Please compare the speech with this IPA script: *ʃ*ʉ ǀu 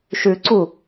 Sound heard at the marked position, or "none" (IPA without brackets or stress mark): ʃ